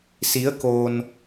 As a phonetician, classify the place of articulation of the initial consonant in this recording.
alveolar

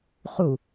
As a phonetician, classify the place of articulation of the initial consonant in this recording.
uvular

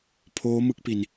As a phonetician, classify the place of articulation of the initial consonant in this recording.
labial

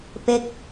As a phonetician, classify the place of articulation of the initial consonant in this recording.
labial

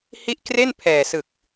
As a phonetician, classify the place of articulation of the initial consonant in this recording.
glottal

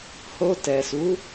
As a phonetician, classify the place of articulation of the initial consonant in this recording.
glottal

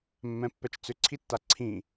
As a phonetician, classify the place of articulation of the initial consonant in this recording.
labial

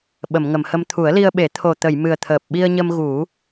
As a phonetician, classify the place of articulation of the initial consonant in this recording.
labial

